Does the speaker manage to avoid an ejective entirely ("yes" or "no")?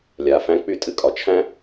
no